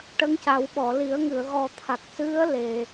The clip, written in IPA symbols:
ʈ ə˧˥ ŋ c a˨˩˦ w ɓ ɔ˨˩˨ l i˨˩˦ ə̯ ŋ ɨ˨˩˨ ə̯ ɣ ɔ˨˩ t̪ʰ a˨˩ k̚ s ɨ˧˥ ə̯ l e˨˩˨

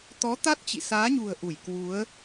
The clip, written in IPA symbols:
t̪ ɔ˨˦ t̪ a˦˥ t̚ t͡ɕ ḭ˧˨ s aː˨˦ ɲ ṳ˨˩ ə̯ ʔ u˧˩ j k w u˨˦ ə̯

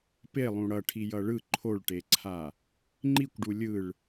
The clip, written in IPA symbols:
p e lˠ ũ ɽ ʌ ʈʰ i j ʌ ɭ ɯ ǃʰ o ɭ ʈ e ǀʰ a | ŋ͡ǃ i kʷ ɖ u lʲ ɯ ɭ

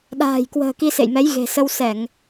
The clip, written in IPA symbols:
ɗ a̤ː˨˩ j k w ə̤ː˨˩ k i˧ s ḛ˧˨ j m ɛ˨˦ j ɣ e̤˨˩ s ə˧ w s ɛ˧˩˨ ŋ

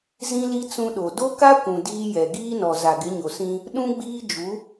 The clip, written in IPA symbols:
z ĩ˦ l i˦ t͡s ũ˦ ɗ o˨ d o˦ k a˦ kʷ ũ˨ d iː˦ j ɛ˨ ɡ iː˦ n ɔ˨ z a˨ ɡ ɪ˨˦ ɲ o˨ s ĩ˦ | ɗ ũ˦ ɡ͡b iː˦ d͡ʒ u˨˦

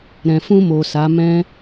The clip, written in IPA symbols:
ɾ ɛ̃˨ f ũ˧ m o˨ s a˨˦ m ɛ̃˦

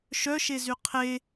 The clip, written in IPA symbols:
ʃ œ ʃ e z y qʰ e

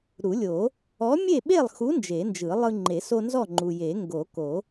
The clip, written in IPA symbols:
ɾ u˨˩˦ lʲ o˨˩˦ | ɔ˨˥ mʲ e˥˨ ɓ e˥˨ lˠ x u˨˥ n d͡ʒ e˨˩˦ n d͡ʒ ɯ˨˩˦ lˠ ɯ˦ ŋ͡ǃ e˨˩˦ s o˦ n z ɔ˥˨ ŋ͡ǃ u˨ j e˨˩˦ ŋ ɡ o˨˩˦ k o˨˩˦

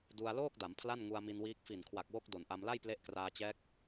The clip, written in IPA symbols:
d u˧ a̯ l oː˥˩ k̚ d a˩˦ m pʰ l a˥˩ n ŋ u˧ a̯ m i˧ n w iː˦˥ k̚ f i˨˩ n kʰ w a˨˩ k̚ w o˦˥ k̚ d o˨˩ n ʔ a˧ m l a˥˩ j p l e˦˥ ʔ k r aː˧ t͡ɕ ɛː˦˥ k̚

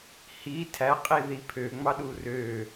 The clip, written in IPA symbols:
h i tʰ æ qʼ i ð i pʰ ø ŋ͡m ɑ ɗ u r ø

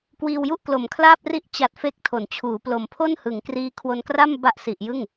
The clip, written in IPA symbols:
k w iː˧ w j u˥˩ ʔ k l o˩˦ m kʰ l aː˥˩ p̚ r i˦˥ ʔ t͡ɕ a˨˩ t̚ f e˦˥ k̚ tʰ o˩˦ n t͡ɕʰ uː˩˦ p l o˩˦ m pʰ o˥˩ n h ɯ˩˦ ŋ k r iː˦˥ kʰ w o˧ n k r a˥˩ m b a˥˩ ʔ s i˨˩ ʔ j ɯ˥˩ ŋ

